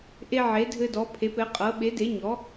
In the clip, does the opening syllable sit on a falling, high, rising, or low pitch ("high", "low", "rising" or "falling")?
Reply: high